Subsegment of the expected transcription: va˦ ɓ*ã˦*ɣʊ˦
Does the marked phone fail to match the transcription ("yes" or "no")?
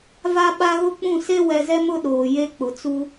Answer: yes